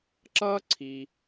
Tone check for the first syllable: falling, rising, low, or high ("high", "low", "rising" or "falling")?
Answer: high